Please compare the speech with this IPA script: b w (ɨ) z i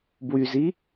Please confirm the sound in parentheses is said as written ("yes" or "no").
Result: no